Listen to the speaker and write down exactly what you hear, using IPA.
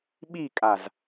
ɓ i kʼ a z

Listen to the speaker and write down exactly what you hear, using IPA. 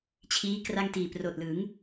t͡ɕʰ iː˦˥ k r a˥˩ ŋ t iː˨˩ p r oː˨˩ t̚ l ɯ˩˦ ŋ

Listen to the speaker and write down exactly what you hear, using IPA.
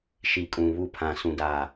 ʃ i˨ kʼ ũ˨ β u˦˨ pʰ ã˨ s ũ˨ d aː˨

